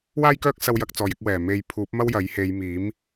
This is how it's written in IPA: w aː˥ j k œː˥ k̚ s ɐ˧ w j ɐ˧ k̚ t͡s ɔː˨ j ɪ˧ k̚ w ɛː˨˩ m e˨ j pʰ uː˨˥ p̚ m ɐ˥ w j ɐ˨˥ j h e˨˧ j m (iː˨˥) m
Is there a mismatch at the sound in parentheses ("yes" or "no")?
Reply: no